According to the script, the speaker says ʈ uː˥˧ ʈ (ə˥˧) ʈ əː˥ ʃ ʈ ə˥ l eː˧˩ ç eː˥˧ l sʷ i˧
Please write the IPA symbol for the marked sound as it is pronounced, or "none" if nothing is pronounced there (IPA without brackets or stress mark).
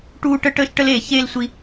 ə˥